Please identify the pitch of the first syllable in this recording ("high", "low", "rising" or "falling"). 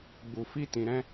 low